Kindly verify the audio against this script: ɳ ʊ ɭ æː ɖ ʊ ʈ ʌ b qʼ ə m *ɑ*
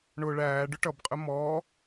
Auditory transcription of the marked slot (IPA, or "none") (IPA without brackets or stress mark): ɔ